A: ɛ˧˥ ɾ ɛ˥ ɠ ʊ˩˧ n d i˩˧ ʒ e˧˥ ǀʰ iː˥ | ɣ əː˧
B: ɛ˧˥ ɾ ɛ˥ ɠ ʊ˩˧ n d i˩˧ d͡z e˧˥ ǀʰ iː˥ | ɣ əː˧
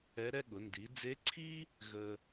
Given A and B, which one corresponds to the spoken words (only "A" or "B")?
B